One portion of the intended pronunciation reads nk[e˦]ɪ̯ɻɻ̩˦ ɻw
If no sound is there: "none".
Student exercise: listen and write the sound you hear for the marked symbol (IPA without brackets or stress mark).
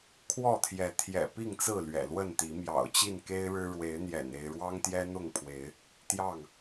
e˦